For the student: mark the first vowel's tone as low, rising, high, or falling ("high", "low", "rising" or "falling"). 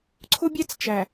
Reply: high